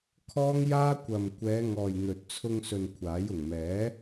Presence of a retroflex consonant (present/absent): absent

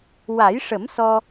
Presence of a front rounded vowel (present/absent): absent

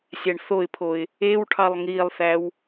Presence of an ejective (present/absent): absent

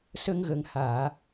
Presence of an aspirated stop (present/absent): absent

